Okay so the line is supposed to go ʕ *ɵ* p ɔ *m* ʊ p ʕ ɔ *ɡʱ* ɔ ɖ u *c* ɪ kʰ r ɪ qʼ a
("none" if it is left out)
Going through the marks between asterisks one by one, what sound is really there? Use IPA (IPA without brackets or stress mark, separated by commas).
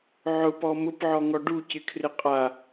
ʊ, m, ŋ, c